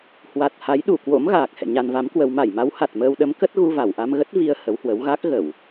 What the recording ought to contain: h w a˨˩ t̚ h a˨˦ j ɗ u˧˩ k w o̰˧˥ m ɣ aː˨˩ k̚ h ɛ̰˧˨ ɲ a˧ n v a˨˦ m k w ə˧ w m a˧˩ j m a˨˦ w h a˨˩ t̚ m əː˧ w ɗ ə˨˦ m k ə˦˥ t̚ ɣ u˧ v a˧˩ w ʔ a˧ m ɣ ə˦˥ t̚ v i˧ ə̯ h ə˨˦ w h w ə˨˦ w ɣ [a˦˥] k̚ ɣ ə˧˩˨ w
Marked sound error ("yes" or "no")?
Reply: no